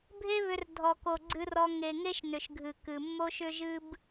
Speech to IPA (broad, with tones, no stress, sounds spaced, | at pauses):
bʱ e˦ β ʏ˧ r dʱ ɔ˨ k o˨ ɡ͡ǀ ɨ˧ r ɔ˧ ŋ e˨ ŋ e˦ ʃ n ʏ˨ ʃ ɡʱ ɨ˨ k ɨ˨ mː o˦ ʃ ʏ˦ ʒ ɨ˦ b